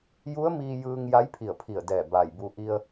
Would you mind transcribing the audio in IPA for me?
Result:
j u˧˥ ə̯ m iː˧ j ɯː˧ ŋ j a˧˥ j pʰ i˧˩ ə̯ pʰ i˧˩ ə̯ d ɛː˧˩ b aː˧˩ j b u˧ ʔ i˧ ə̯

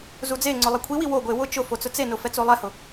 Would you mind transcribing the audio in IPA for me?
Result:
z u d͡z e ŋ͡ǀ ʊ lˠ e kʷʰ i w i w o ɡʷ e w ʊ t͡ʃ ʊ f o t͡s ʊ t͡s e n ʊ f ɛ t͡s o lˠ ɛ h ʊ

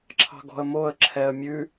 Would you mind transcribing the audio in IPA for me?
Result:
ǁʰ ɑ̤ ɡ ɔ̤ ə̯ m o ə̯ ǁʰ ɛ ə̯ mʲ ʉ

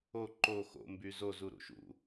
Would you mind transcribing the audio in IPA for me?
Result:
o ǃ o x o̰ m b y z o z u ɾ ṵ ʃ ṵ

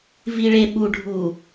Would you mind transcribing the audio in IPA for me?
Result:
v i ɭ e ɓ u ɖʱ u

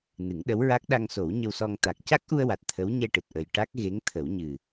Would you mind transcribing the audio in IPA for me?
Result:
n ɨ˨˩˦ ŋ ɗ ə˧˥ w ɹ a˦˥ k̚ ɗ a˧ ŋ s o˨˩˦ w ɲ ə˧ w s ɔ˧ ŋ t̪ a˨˩ k̚ c a˦˥ k̚ ʔ u˧ ə̯ w a˨˩ t̚ t̪ʰ ə˧˥ w ɲ ɛ˧ ʈ ɨ˨˩ t̚ ʔ ə˨˩ j ʈ a˦˥ k̚ ɣ e˧˥ ŋ t̪ʰ ə˨˩˦ w ɲ ɨ˨˩

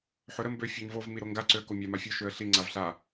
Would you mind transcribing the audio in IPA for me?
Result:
ħ ø ɾ ə m b ø fʲ a ɲ v o v m i ɾ o ŋ ɡ a ǀ ø ə̯ k o mʲ a m a fʲ ø ʃ ø ə̯ ɬ i ŋ͡ǀ a v ɬ a

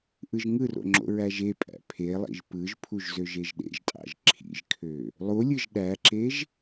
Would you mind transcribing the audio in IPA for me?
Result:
ʔ ɯ ʒ ŋ ɯ r o̰ ŋ͡ǁ o̰ ɹ æ ʒ e pʼ æ̰ pʰ e lˠ ḭ ʒ p ɯ ʒ pʰ u ʒ z ø ʒ e ʒ ɗ ḛ ʒ tʼ ɑ̰ ʒ ǁʰ ḭ ʒ kʰ ø | lˠ u lʲ ɯ ʒ ɗ æ ǁ e ʒ

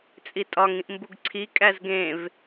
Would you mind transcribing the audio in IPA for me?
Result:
t͡sʼ i tʼ ɒ ŋ ĩ ʔ m b u ɡ ǀʰ i kʼ æ z ɡ ẽ v

